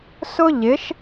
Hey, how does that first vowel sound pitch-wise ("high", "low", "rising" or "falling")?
high